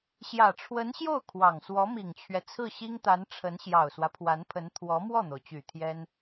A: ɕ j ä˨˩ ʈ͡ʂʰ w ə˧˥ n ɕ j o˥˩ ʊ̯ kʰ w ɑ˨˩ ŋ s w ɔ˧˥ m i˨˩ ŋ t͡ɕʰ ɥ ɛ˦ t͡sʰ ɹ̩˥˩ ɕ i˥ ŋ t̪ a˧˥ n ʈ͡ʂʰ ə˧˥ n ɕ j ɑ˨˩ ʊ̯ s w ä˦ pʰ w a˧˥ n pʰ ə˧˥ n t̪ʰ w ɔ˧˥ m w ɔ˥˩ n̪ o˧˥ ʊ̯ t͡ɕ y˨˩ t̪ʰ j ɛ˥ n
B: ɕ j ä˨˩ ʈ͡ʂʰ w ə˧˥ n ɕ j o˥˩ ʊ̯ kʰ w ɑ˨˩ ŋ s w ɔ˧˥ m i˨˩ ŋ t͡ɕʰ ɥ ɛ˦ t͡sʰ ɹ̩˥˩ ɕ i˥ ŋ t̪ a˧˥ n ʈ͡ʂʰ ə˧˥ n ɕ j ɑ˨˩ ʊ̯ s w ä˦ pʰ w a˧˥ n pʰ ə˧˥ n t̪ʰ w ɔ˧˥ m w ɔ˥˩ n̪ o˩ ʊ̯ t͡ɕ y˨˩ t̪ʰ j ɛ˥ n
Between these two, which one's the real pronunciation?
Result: B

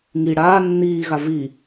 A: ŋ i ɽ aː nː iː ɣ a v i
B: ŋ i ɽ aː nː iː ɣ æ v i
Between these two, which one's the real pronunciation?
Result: A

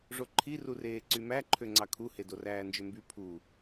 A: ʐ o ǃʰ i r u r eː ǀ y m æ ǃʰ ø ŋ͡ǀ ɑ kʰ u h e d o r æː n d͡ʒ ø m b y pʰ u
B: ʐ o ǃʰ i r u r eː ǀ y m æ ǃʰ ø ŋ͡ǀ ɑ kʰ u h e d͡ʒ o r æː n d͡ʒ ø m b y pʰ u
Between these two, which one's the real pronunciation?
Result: A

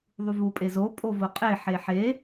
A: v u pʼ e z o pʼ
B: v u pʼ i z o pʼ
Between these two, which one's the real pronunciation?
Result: A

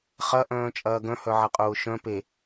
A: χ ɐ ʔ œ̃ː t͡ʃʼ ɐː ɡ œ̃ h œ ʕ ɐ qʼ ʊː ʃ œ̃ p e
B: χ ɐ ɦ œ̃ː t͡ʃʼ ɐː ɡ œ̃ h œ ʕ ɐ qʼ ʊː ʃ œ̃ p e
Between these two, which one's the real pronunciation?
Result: A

